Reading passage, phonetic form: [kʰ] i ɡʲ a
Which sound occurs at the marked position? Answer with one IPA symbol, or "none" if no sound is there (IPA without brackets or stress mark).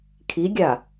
kʰ